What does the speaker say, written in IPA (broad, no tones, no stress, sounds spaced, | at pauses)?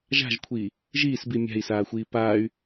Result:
ʒ a̤ ʒ kʷʰ iː | ʒ iː s b i mʲ a̤ i̯ s aː xʷ iː p aː y̯